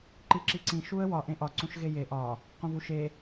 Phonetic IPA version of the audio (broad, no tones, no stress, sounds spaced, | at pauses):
ǃ i ǁ i ǀ ĩ ʃ u ə̯ w ɒ ʔ ẽ ʔ ɒ ǀ ũ ʃ ɣ e j e ʔ ɒ | q ũ v u ʃ e